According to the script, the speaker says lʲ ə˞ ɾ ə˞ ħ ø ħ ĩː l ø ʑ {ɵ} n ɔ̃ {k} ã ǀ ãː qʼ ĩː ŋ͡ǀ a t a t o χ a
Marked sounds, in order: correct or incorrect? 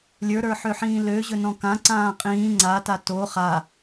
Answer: correct, correct

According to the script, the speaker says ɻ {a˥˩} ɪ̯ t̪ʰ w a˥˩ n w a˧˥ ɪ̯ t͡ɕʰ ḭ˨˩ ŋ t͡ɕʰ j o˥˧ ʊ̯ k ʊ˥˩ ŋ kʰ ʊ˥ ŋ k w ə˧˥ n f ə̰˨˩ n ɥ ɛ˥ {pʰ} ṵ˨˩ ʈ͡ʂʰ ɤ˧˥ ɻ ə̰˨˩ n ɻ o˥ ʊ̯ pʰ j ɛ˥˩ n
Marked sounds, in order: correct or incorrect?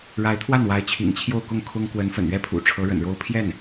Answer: incorrect, correct

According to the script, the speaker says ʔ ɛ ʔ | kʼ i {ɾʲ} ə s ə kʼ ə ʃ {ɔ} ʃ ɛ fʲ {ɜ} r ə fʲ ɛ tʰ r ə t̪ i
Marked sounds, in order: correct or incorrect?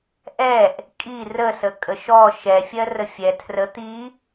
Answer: incorrect, correct, correct

